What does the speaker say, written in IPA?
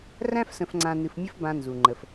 r æ̃˥ f s ə̃˧ f ŋ͡ǀ ã˧ n ɨ˧ f mʲ ə˥ f b ã˧ n z u˩ ŋ͡ǃ ə˩ f

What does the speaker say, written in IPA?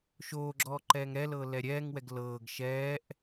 ʃ oː ɡ͡ǁ ɔː ǃ ɛː ŋ ɾ ɛ l ɤː l ɛ ɾʲ ɛː ŋ w ɛ ɡ l ɤː ɡ ʃ ɛː ʔ

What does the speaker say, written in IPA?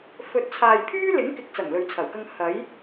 f ɵ˨˥ t̚ t͡sʰ aː˨ j pʰ yː˥ l ɪ˨˥ ŋ k ɪ˨˥ k̚ t͡s ɐ˨˩ ŋ l ɵ˨ ɥ t͡sʰ ɐ˨˩ w k ɐ˧ ŋ h ɐ˨˥ j

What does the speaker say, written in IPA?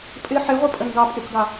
pʼ ɪ ħ ɪ ʁʷ ɨ pʼ ə n ɡ ɑ pʼ u k ɡ ɑ

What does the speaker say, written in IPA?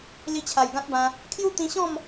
l i˧ t͡ɕʰ a˨˩ j ɡ ã˦ t̚ b ã˧ | kʰ j u˥˧ t̪ ĩ˧ ɕ ɔ̃˥˧ m

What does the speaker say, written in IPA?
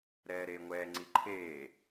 ɾ ɛː ɾ eː ŋʷ ɛː ŋ͡ǀ i ǃʰ eː

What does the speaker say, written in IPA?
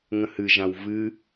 ŋ ə̃ h ɨ ʒ ã w v ɨ

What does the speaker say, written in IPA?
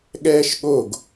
ɠ ɛː ʃ ɠ o ɡ

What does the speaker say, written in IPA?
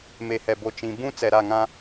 m e˨ h ɛ˨ b o˨ t͡ʃ ĩ˨ b ũ˦ t͡s ɛ˨ ɾ a˦˨ ŋ ã˦

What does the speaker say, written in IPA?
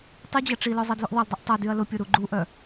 tˤ i d͡ʑ ɐ ʈ͡ʂ i l œ zˤ ɛ d l y ʔ ðˤ ɐ l dˤ y ʔ tˤ ɐ d y ɐ̯ l ʊ pʲ o ɾ u ɡ͡ǃ u ʔ œ

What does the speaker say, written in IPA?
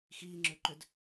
x iː ŋ͡ǁ ø ǃ ø d

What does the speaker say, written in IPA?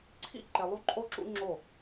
ǀʰ ḭ˦ ǃ e˨ lˠ u˦ ǃʼ o˦ ǁ ṵ˦ ŋ͡ǁ o˦˨

